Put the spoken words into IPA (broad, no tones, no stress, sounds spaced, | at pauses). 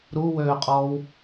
ɾ u w øː qʼ ɔː w